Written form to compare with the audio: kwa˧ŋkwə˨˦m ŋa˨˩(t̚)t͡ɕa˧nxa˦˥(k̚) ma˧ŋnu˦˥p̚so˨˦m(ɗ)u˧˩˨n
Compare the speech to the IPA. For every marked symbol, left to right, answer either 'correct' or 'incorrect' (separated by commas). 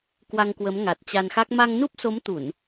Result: correct, correct, incorrect